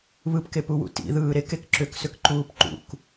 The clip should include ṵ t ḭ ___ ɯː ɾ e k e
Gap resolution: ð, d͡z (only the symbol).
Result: ð